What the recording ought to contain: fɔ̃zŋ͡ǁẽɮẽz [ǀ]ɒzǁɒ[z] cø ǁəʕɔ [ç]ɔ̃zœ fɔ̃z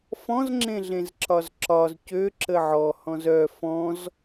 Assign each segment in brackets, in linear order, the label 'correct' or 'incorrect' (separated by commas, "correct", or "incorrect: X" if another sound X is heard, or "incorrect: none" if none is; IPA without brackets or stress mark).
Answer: incorrect: ǁ, correct, incorrect: h